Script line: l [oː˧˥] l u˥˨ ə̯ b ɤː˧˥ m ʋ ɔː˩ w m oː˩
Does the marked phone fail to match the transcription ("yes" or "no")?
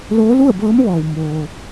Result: no